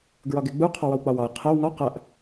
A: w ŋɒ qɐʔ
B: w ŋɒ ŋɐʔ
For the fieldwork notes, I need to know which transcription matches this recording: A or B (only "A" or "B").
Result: A